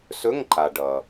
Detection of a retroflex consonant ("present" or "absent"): present